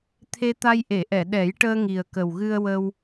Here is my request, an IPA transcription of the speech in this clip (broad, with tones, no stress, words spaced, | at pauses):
t̪ʰe˧t̪a˧jʔe˨˩˨ʔɛ˨˩˨ ɗɛ˨˩˦jʈəː˧ ŋi˨˩ə̯kə˨˩wɣɨ˧ə̯wə˧w